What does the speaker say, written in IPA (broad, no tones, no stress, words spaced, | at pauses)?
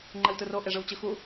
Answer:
ŋ͡ǃɛwtɯro ʔeʐɯwt͡ɕɯxu